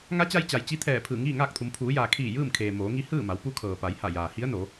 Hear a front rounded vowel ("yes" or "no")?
no